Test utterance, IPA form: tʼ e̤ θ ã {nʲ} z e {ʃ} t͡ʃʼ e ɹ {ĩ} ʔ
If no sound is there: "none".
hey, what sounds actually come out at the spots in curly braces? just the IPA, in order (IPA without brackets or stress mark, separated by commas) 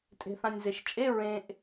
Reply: nʲ, ʃ, ẽ